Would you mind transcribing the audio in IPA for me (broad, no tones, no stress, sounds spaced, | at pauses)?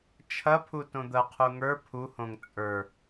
t͡ʃʰ ɐ pʰ u t õ d̪ ɐ qʰ u ŋ ə˞ pʰ u h õ ŋ t͡sʼ ə˞